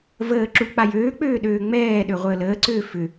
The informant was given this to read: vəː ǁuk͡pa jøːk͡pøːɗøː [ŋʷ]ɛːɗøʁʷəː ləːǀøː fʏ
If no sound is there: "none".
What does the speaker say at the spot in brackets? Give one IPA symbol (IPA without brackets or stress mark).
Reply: ŋ͡m